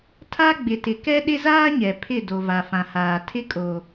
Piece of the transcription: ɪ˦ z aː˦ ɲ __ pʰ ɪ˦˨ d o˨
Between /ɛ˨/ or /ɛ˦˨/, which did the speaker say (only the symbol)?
ɛ˨